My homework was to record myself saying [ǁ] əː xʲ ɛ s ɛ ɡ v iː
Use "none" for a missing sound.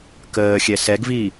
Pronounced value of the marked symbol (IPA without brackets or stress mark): k